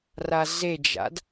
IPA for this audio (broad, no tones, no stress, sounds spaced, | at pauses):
r a z e d͡ʒ a̰ d